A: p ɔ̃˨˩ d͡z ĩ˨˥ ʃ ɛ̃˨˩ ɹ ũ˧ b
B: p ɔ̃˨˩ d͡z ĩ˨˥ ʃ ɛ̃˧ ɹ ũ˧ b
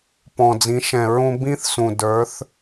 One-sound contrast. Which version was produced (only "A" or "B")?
A